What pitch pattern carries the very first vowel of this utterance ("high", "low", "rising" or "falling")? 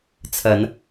rising